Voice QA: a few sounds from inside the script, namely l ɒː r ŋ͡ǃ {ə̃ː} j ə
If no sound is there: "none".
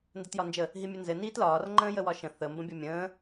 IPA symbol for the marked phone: ə̃ː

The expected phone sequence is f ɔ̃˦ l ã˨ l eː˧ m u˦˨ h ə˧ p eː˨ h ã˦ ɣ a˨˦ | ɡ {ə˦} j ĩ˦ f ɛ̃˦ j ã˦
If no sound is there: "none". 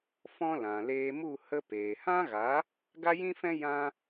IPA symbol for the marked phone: a˦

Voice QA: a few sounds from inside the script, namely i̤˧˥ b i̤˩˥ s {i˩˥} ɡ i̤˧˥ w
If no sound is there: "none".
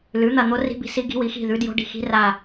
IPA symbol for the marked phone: i˧˥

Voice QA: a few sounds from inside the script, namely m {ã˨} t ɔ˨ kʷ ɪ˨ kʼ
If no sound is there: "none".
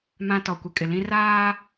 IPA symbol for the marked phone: ã˨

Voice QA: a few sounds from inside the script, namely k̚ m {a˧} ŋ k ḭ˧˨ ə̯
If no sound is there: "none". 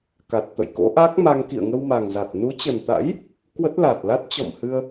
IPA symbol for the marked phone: a˧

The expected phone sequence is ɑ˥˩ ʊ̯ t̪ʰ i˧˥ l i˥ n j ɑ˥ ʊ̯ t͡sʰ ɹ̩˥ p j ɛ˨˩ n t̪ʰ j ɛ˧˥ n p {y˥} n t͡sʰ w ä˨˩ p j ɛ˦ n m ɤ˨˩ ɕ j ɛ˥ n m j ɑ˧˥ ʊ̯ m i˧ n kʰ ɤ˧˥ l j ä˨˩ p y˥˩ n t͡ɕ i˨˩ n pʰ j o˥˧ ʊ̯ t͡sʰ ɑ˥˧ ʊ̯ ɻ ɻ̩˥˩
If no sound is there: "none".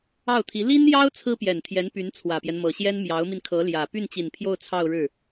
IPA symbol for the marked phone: y˧˥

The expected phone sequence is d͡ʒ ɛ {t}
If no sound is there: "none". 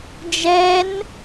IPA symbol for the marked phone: n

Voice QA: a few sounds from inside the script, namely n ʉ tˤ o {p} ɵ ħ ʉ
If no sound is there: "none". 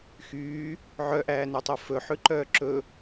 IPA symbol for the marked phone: f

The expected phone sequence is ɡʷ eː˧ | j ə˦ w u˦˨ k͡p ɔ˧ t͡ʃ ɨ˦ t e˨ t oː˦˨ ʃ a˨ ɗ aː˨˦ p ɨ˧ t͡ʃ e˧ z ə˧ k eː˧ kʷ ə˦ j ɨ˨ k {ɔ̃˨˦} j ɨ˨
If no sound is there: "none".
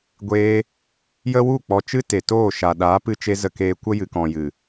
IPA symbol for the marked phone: ɔ̃˨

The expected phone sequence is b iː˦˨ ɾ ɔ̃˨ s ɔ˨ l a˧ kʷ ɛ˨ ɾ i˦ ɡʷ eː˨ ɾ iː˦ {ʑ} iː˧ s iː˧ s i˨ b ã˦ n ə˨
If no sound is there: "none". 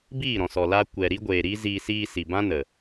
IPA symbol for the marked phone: z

